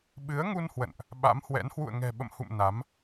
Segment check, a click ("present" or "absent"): absent